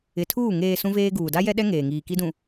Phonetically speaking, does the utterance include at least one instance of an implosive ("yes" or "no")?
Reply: yes